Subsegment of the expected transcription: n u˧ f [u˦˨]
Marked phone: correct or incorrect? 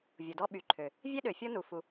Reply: incorrect